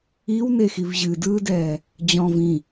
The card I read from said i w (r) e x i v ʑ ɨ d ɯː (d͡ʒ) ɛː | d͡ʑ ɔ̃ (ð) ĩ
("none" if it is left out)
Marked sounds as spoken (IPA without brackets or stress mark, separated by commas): n, d, v